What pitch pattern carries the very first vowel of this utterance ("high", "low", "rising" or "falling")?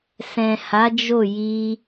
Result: low